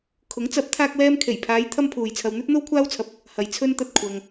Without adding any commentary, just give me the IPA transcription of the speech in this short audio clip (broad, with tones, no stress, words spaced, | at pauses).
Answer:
kʰʊ˨˥ŋt͡sɐ˨˥p̚ t̪ʰaː˥k̚wɛː˥m kʰe˨˩jpʰaː˨˧j t̪ʰɐ˥mpʰuː˨jt͡sʰɐ˧w n̪ɵ˥t̚n̪o˥wkʷʰaː˥wt͡sʰɐ˧p̚ | hɐ˨j t͡sʰɵ˧nt̪ɐ˨t̚ kʷʰɐ˧ŋ